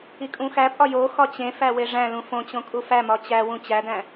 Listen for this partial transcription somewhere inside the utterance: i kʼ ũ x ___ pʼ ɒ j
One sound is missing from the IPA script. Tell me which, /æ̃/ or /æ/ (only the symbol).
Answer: æ